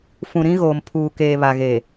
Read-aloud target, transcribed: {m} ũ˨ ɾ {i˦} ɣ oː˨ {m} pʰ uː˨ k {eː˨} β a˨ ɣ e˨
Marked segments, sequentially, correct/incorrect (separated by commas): incorrect, incorrect, correct, correct